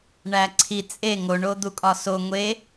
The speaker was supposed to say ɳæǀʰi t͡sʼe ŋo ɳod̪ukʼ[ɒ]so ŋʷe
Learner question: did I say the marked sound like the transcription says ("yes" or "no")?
yes